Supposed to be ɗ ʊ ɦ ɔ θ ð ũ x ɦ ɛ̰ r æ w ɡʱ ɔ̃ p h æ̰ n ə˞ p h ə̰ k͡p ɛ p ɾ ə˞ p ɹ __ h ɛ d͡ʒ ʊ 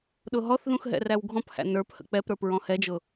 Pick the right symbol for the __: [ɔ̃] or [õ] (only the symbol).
ɔ̃